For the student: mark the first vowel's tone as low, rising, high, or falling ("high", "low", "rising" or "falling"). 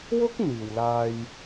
high